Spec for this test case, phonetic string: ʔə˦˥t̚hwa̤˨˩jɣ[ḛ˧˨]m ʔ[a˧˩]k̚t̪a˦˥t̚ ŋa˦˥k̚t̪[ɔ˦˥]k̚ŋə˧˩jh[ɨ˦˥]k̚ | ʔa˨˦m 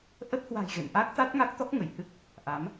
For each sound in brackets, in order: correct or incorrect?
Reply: correct, incorrect: a˦˥, correct, correct

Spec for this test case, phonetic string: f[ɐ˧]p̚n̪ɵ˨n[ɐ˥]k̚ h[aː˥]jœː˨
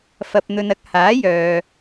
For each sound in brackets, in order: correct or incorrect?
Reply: incorrect: ɐ˨, incorrect: ɐ˨˥, incorrect: aː˨˥

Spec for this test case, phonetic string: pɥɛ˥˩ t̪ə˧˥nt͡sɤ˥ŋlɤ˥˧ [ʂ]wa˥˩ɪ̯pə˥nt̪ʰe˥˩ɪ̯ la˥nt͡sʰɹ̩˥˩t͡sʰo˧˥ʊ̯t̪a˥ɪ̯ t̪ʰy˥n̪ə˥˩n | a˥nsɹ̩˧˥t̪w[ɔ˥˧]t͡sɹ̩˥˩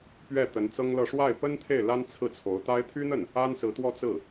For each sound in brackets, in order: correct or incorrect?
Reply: correct, correct

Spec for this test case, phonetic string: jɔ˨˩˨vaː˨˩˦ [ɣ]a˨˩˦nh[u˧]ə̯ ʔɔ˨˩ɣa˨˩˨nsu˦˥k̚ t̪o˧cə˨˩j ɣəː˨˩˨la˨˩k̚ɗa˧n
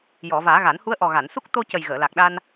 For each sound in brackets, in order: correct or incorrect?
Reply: correct, incorrect: u˧˥

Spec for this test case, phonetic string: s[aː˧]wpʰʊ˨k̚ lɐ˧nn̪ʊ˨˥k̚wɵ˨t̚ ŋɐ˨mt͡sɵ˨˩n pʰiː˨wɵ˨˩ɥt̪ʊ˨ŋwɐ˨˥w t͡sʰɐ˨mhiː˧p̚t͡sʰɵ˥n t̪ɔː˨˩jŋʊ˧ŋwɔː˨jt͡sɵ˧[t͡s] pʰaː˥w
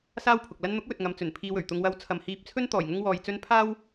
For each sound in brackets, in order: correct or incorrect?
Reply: incorrect: aː˥, incorrect: n

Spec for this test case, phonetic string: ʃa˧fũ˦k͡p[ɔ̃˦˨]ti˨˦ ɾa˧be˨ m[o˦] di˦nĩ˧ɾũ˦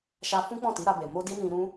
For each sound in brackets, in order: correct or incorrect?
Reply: correct, incorrect: o˧

